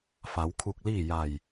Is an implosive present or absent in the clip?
absent